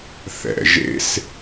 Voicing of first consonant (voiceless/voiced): voiceless